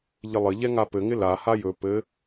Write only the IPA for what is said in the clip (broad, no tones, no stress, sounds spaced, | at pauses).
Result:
ʎ ɪ lˠ ɘ ʎ ɛ ŋ a p ɘ ŋ ɪ l a h a j ɵ p ɘ